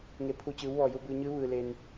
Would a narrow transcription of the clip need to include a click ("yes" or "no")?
no